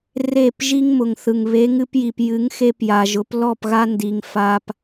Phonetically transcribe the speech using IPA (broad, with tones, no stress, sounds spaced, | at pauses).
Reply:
r e˦˨ p ʒ i˦ ŋ m ʊ˨ ŋ θ ɯ˨ ŋ β e˨˦ ŋ ɨ˧ p j i˨ p j ɨ˨˦ ŋ x e˧ p j a˨ ʒ ʊ˨˦ p l ɔ˦˨ p ɣ a˦ n d i˨ ŋ f a˧ p